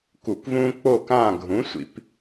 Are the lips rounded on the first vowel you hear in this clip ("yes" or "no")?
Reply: yes